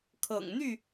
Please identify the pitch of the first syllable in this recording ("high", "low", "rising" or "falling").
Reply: low